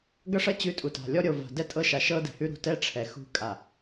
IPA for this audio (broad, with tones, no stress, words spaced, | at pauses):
ɡʌ˦ʂʌ˦ t͡ɕʉ˨˦ tʼu˨ta̤˨lʲɔ˦ ɾʲo˨ va̤˨dɛ˦tʼɤ˦ʃa˨ ʃɤ˦dɛ̤˨hʉ˦ ɾṳ˨tɛ˦ ʈ͡ʂʰɛ˨xṳ˦˨kʼa˨